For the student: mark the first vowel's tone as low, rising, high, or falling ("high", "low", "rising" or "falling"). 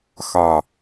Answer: low